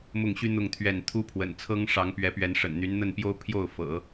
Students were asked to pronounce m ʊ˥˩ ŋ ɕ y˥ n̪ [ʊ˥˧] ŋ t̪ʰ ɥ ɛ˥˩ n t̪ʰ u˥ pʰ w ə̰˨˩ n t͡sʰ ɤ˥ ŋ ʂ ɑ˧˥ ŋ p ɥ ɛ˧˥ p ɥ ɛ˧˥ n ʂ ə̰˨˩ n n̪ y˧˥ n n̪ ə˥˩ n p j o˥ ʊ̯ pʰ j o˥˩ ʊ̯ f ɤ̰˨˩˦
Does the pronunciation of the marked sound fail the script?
no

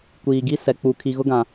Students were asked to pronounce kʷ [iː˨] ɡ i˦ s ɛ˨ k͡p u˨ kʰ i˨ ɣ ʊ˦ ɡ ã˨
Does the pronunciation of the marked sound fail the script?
no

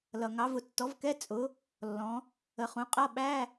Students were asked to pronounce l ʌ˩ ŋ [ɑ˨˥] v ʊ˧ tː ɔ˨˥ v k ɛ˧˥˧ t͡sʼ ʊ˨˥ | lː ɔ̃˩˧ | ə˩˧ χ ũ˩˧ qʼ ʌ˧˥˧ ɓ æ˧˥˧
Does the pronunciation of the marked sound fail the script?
no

